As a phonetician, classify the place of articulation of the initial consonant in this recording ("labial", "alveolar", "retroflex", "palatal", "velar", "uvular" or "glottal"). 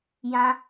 palatal